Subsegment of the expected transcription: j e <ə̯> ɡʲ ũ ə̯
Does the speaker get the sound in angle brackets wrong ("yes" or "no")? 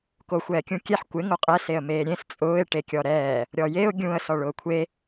yes